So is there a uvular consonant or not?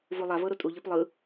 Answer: no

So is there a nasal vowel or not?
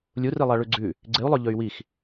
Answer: no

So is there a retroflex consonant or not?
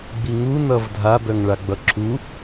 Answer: yes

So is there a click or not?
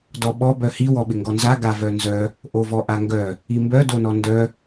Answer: no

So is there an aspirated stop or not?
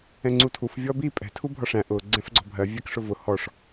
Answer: yes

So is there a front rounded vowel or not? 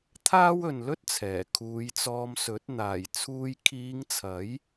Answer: no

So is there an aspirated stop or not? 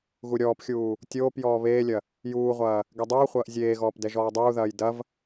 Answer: no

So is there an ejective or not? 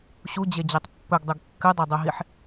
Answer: no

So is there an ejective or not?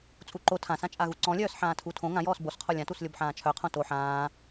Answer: yes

